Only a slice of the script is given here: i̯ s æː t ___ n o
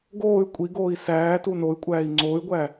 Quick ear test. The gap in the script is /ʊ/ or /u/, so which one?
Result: u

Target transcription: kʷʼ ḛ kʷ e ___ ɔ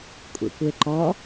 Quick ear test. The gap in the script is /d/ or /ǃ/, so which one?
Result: ǃ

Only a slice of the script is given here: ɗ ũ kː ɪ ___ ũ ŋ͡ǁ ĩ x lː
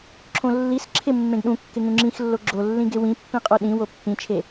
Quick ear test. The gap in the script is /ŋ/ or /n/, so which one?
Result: ŋ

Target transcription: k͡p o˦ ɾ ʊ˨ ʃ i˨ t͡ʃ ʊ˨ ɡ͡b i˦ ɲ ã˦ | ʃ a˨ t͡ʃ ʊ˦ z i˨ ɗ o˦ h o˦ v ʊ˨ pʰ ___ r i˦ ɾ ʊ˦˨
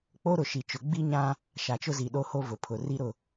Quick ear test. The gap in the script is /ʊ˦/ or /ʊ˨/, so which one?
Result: ʊ˨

